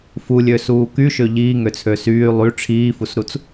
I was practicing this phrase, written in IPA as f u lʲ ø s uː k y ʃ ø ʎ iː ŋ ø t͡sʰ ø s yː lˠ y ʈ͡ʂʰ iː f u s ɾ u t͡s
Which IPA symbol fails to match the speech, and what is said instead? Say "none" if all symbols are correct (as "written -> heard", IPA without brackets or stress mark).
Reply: none